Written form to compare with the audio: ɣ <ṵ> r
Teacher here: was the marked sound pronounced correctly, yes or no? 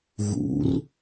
yes